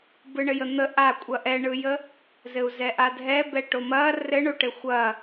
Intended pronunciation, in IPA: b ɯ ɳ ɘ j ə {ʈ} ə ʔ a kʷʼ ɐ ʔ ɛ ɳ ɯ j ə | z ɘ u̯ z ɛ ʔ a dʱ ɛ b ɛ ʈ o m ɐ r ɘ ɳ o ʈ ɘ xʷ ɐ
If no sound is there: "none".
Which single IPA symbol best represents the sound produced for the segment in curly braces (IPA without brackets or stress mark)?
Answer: n̪